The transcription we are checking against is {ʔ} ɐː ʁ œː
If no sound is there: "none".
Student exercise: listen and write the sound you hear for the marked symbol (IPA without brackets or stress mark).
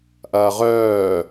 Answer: ʔ